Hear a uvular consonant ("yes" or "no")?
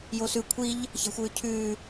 no